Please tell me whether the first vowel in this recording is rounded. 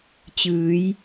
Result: no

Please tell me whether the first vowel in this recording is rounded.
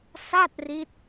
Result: no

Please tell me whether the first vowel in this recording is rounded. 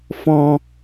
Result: yes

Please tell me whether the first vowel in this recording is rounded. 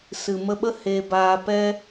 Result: no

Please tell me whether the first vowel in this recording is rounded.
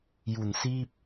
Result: yes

